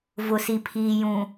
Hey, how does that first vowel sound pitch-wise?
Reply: low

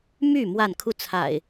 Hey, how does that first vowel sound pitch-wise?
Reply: falling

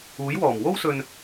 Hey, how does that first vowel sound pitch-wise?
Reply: rising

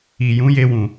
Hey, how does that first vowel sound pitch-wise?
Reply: low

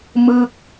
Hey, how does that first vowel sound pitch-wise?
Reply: falling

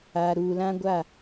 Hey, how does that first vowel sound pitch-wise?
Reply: low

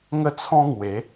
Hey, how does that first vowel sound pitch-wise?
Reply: high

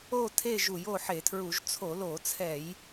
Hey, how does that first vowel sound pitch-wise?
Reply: falling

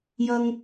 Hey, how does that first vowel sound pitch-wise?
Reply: high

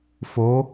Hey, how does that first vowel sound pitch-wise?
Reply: rising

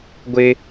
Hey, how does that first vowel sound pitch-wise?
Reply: high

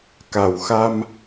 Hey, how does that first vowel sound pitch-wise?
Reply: low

